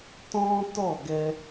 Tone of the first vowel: high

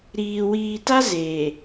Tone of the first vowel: low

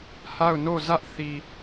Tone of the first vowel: falling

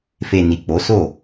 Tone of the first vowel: low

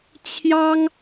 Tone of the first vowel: high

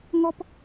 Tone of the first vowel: high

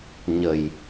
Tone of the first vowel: low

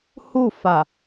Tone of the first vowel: falling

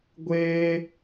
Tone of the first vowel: high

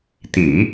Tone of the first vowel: low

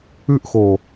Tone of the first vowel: falling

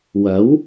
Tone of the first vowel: rising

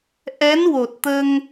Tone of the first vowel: rising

